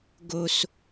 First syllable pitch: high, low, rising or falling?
low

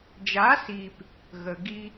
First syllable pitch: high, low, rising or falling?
rising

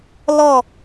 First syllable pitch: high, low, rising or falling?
falling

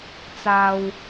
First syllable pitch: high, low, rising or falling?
low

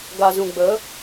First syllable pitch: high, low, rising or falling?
low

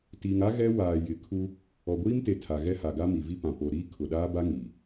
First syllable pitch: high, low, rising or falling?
low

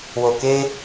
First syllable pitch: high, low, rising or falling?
low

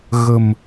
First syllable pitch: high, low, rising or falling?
low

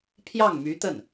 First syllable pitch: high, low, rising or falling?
falling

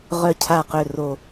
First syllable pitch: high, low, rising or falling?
falling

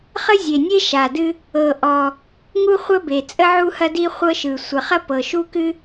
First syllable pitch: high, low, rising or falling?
high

